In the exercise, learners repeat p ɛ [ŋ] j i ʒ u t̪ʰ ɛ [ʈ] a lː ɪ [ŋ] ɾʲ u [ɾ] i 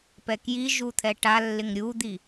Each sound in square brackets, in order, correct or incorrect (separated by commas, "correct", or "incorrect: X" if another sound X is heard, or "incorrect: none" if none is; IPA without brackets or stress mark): incorrect: k, correct, correct, incorrect: d̪